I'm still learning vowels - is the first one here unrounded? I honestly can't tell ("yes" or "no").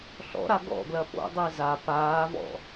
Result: no